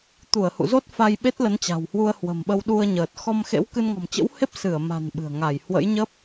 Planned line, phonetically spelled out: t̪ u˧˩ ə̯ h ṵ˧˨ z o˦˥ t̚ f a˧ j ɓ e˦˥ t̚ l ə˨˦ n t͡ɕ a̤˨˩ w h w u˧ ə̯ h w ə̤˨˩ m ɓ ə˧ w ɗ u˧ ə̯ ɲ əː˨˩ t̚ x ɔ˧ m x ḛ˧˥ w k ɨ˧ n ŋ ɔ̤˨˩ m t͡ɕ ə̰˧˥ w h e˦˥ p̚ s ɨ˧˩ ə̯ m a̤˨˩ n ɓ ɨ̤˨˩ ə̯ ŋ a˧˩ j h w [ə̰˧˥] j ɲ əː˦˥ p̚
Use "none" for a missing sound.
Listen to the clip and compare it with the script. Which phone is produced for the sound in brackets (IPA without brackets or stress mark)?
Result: ə̰˧˥